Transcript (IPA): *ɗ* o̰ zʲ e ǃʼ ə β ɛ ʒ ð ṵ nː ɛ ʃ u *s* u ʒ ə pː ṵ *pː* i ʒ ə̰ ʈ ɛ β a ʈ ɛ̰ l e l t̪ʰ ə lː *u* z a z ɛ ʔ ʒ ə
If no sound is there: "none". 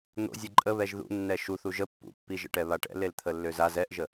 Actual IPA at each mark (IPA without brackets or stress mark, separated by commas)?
n̪, θ, pː, ø